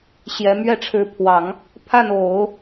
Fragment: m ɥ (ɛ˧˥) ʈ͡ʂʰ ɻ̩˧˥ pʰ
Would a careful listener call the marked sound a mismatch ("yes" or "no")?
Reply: yes